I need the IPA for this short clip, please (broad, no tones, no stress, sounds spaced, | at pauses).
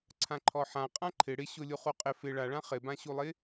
ǀʰ ã ǃʰ ɔ ħ ã qʼ ã ǃʰ ɪ ɽ ɪ ɕ ʊ lʲ u χ u qʼ ɪ f ɪ ɭ a ɭ ã χ ɪ b ã ɕ u lˠ ɪ